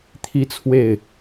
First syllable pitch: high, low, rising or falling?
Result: high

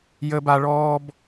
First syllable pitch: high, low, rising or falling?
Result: high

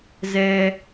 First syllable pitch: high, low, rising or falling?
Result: high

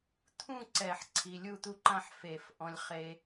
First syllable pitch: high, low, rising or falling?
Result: falling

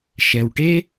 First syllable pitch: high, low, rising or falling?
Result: low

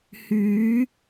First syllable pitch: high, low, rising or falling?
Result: rising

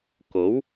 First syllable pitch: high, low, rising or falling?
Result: rising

